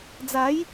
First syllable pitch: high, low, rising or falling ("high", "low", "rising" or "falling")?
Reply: rising